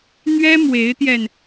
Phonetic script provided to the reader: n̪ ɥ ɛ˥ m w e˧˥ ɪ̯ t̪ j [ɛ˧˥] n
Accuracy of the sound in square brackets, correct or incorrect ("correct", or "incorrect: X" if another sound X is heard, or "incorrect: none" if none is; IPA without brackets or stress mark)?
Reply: incorrect: ɛ˧